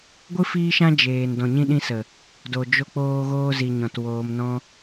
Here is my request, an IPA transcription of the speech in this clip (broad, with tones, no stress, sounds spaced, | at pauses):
ɡʷ ɨ˦ f iː˦ ʃ ã˦ d͡ʒ eː˨ n d ɔ̃˨ ɲ ĩ˧ ɗ ĩ˧ s ə˨ | d o˨ d͡ʒ o˧ k͡p oː˧ ɣ oː˧ z i˨ ɲ ɔ̃˨ t w oː˨ m n ɔ̃˧